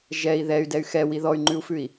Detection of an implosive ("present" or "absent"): absent